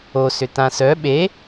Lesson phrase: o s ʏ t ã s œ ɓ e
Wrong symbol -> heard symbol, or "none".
none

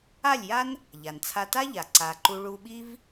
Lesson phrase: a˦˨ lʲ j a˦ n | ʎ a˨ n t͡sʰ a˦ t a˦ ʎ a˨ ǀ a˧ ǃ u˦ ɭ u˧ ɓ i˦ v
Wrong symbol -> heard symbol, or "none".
none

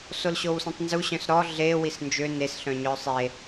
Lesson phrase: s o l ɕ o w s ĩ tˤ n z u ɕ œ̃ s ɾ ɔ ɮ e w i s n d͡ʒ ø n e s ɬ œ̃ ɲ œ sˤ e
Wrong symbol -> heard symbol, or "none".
none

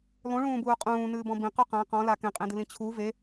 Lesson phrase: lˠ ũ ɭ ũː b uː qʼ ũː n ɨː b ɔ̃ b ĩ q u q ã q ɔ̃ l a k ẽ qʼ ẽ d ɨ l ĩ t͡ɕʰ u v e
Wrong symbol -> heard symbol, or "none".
none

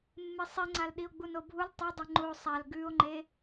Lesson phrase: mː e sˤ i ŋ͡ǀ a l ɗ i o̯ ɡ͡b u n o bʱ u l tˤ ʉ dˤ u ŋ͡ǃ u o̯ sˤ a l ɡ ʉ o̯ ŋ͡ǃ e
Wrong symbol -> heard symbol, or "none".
none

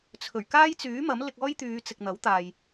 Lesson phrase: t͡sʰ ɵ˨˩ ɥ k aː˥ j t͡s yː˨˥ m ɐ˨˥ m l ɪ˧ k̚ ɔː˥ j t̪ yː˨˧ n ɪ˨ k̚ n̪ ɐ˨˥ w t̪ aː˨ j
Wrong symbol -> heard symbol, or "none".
n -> t͡s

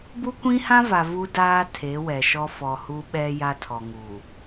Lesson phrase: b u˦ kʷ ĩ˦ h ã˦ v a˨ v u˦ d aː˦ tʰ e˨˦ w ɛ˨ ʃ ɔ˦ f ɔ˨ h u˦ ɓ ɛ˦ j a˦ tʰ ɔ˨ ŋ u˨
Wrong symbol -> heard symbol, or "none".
none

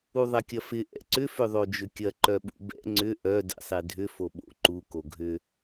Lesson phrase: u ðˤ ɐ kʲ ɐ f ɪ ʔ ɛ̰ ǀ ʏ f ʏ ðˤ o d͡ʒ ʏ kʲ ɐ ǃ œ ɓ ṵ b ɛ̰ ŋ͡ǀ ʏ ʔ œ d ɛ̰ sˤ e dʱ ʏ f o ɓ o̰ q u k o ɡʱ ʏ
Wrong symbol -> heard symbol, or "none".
q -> ǃ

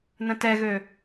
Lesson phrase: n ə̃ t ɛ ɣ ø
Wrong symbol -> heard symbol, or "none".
none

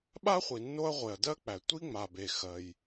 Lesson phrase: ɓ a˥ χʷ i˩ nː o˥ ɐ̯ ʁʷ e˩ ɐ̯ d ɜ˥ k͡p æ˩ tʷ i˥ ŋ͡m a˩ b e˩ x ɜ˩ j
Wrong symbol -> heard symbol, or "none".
none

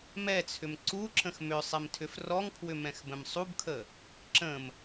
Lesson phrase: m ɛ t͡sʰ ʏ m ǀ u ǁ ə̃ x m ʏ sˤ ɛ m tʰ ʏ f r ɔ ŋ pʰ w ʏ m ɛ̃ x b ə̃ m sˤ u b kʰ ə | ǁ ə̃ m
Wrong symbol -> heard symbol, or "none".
none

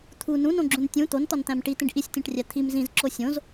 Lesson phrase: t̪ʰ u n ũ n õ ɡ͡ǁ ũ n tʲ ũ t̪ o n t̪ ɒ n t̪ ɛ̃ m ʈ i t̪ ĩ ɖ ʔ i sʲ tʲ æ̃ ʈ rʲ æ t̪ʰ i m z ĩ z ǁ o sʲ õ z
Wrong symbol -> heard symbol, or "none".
ɛ̃ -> æ̃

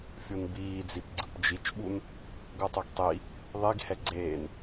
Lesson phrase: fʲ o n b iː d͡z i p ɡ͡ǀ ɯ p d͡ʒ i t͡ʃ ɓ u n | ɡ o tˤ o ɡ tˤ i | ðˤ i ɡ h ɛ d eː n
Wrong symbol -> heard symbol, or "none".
d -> ɡ͡ǀ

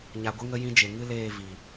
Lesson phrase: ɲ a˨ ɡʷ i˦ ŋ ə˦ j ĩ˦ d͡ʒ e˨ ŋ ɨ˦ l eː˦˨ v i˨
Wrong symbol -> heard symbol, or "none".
none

